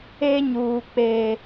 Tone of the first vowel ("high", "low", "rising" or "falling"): high